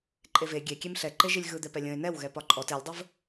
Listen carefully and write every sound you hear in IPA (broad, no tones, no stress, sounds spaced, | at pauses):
ǃʼ e v e ɡʲ e kʲ e m ɬ ɛ ǃ e ʒ i lʲ ɣ ɯ d̪ ɛ p ɛ lʲ ə̃ ɪ̯ n ɛ w ɣ ɛ p ɒ ǃʼ ɔ t e lʲ dˤ ə v